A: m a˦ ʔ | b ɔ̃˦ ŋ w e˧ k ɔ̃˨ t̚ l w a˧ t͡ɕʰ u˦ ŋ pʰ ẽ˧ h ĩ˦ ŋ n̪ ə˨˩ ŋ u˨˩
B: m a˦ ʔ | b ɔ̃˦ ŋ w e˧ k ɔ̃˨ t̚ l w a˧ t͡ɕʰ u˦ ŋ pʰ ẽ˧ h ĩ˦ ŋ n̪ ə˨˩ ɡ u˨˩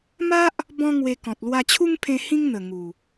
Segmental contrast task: A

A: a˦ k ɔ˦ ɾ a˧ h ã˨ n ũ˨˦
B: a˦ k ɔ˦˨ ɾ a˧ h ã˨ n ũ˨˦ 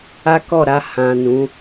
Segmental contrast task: B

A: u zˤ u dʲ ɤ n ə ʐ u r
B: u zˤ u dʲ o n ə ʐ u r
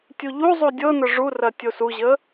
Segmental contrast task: A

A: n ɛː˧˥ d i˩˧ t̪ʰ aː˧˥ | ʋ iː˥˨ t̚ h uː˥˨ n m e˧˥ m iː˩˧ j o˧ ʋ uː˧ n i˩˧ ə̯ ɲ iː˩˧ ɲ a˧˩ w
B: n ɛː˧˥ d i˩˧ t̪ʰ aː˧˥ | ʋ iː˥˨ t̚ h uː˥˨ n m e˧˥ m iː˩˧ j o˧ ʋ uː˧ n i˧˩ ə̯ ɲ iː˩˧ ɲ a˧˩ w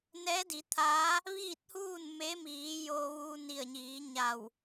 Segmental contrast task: B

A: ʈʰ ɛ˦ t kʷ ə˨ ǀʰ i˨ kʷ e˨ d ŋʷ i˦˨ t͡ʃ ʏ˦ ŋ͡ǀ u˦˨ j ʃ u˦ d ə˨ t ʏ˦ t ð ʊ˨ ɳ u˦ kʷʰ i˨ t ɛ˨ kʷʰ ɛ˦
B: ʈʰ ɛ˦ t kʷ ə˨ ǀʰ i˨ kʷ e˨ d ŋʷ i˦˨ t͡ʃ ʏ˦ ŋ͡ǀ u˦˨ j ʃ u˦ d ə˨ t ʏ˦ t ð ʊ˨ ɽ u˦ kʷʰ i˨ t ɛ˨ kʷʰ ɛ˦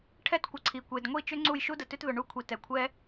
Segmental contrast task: A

